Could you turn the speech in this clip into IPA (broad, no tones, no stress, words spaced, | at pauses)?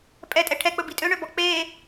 pʼɛ tʼɛʈʰɛk͡pɵ bitʼøɳøbɔ k͡peː